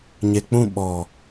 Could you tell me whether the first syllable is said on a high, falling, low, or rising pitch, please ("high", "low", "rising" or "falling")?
low